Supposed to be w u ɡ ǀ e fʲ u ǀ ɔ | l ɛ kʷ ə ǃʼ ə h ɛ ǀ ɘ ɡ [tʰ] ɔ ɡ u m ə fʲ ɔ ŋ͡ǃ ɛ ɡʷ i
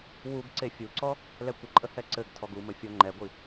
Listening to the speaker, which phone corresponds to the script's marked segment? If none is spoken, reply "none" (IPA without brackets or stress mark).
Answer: tʰ